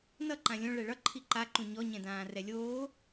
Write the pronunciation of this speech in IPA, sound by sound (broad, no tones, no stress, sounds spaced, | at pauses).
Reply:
n ʌ ǃ ã lʲ õ ɭ ɛ ɭ ʌ ǃʰ i ǃ a ǃ ũ ɲ ɔ ɲ ɛ̃ d ãː r ɛ lʲ oː